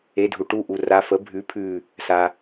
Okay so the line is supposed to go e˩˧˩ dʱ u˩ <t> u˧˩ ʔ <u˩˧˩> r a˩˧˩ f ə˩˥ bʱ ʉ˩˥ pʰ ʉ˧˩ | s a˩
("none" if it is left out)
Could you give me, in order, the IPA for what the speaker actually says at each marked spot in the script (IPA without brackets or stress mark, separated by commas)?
ʈ, u˩